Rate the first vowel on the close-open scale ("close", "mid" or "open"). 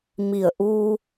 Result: close